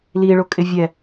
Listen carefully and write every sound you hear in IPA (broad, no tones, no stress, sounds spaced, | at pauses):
l i ɭ ʊ kʼ ɪ vʲ ɛ